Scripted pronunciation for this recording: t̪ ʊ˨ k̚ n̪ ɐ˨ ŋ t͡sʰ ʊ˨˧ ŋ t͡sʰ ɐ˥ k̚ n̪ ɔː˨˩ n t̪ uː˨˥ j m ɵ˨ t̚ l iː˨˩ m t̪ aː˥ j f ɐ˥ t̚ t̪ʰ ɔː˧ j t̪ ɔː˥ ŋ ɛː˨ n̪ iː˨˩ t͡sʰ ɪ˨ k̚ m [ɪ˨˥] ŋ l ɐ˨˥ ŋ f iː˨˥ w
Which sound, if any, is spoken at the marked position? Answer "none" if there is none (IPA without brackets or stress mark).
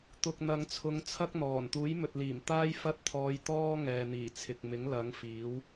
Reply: ɪ˨˥